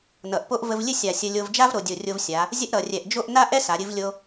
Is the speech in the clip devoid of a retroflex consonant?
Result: yes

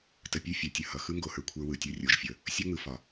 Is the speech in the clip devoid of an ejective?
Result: yes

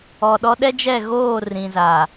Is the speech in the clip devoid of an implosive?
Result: no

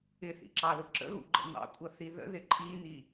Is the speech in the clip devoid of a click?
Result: no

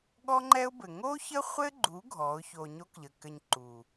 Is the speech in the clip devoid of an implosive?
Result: no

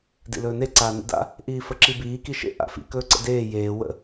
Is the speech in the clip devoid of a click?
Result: no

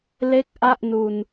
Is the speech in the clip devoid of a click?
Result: yes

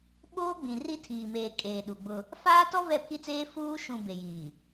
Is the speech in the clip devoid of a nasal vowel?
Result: no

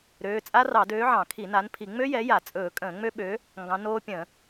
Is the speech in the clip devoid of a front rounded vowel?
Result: no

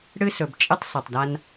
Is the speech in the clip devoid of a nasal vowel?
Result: yes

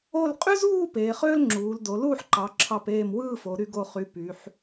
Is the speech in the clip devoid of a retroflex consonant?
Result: yes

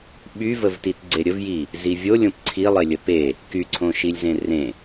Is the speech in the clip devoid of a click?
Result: no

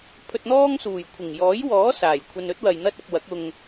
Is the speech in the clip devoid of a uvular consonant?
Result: yes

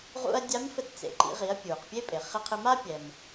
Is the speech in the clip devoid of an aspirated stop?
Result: no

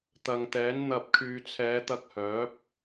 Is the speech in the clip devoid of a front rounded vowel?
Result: no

